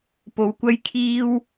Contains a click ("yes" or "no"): no